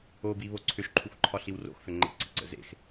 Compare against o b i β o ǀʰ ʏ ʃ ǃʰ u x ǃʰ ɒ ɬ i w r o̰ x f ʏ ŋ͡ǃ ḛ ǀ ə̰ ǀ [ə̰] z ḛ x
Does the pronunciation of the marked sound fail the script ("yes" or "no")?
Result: no